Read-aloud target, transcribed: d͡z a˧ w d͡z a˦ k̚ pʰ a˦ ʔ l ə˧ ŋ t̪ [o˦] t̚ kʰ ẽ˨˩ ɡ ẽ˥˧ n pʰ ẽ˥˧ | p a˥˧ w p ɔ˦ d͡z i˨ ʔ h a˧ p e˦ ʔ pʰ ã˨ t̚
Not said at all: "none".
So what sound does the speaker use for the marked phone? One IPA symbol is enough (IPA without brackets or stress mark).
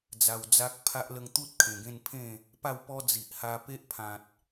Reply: u˦